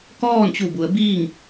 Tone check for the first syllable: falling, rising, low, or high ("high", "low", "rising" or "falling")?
falling